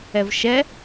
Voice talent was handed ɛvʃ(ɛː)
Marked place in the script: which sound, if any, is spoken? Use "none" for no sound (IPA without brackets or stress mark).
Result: ɛ